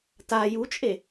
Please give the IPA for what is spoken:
t a j u t͡ʃʼ e

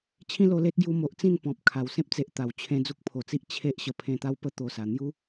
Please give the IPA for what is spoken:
t͡ɕʰ ĩ˦ l o˧ l e˦ t̚ ɡ j u˧ m o˨ ʔ t͡s ĩ˥˧ n p ɔ̃˨ p̚ kʰ a˨˩ w s ẽ˦ p̚ t͡s e˨ ʔ t̪ a˨˩ w t͡ɕʰ ẽ˧ d͡z u˦ k̚ pʰ o˨˩ t͡s i˦ ʔ t͡ɕʰ e˦ ʔ ɕ ə˧ pʰ ẽ˧ t̪ a˦ w p ə˦ t̪ o˨˩ s a˨˩ n̪ j u˦

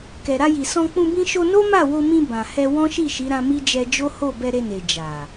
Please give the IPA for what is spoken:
k ɛ˨ ɾ a˧ j i˨ s ɔ̃˧ k͡p ũ˧ b ĩ˦ ʃ o˧ n o˦ m a˦˨ w o˧ m ĩ˧ b ã˨ h ɛ˧ w ɔ̃˦ ʃ i˦˨ ʃ i˨˦ ɾ ã˧ m i˦ d͡ʒ ɛ˧ d͡ʒ o˦ h o˦˨ b ɛ˧ ɾ e˧ n e˨ d͡ʒ a˨

